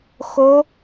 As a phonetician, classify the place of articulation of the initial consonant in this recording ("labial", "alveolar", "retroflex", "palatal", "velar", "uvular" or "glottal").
velar